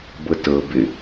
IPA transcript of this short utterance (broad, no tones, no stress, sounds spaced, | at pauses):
b ɤ t ɤ b ɪ